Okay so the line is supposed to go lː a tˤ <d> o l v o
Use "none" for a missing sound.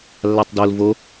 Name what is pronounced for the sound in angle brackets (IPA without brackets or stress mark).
d